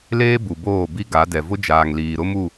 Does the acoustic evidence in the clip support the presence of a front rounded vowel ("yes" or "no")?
no